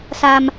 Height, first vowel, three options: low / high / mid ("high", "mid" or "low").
low